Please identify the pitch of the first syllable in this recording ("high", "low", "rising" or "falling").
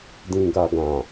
low